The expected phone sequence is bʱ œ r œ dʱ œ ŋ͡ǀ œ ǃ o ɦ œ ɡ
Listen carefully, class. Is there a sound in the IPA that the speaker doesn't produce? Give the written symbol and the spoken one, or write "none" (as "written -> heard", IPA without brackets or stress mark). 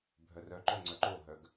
dʱ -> ǃ